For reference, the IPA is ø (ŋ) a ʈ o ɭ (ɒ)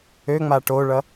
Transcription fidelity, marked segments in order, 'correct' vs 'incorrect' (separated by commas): incorrect, incorrect